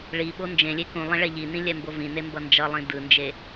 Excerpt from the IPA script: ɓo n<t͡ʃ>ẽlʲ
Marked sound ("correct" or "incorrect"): incorrect